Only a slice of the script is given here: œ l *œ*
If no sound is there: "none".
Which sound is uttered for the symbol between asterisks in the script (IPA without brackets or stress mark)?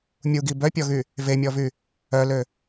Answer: ø